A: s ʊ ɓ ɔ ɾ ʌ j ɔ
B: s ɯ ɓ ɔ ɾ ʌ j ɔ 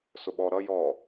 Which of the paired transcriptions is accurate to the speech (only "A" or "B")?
A